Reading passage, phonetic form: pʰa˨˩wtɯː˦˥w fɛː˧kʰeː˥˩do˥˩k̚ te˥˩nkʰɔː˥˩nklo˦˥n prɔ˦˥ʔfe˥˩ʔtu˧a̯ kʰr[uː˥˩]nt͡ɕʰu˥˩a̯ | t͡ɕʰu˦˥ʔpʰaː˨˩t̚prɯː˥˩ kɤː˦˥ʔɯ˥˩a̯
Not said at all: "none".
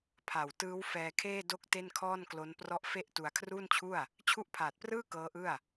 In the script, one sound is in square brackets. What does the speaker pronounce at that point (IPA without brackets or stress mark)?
uː˥˩